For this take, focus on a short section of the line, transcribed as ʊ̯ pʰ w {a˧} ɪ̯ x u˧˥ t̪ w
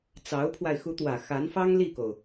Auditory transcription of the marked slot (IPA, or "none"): a˧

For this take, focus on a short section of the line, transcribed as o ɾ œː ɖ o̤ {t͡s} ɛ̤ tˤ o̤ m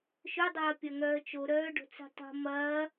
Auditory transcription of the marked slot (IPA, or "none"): t͡s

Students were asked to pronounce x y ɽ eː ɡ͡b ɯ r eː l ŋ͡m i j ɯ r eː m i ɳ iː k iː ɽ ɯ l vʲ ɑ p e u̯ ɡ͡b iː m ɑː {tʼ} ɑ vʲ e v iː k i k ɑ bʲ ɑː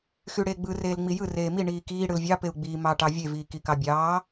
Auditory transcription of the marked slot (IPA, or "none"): ʈ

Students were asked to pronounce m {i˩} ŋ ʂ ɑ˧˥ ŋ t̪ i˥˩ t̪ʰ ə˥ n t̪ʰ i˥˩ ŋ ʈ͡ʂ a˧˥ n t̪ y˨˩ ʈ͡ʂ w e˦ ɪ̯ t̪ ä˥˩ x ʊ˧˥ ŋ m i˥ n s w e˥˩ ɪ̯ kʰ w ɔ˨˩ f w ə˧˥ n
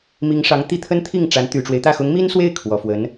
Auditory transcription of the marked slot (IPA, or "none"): i˧˥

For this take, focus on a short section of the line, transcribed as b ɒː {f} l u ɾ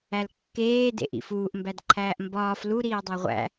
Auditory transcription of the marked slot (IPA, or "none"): f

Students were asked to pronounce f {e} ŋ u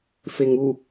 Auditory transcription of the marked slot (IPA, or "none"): e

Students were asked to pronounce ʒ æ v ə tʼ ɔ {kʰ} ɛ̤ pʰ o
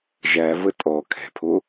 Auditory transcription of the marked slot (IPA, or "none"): kʰ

